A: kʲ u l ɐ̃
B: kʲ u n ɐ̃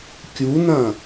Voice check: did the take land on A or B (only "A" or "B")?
B